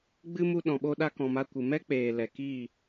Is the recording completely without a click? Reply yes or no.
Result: yes